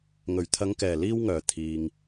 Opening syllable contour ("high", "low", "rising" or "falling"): low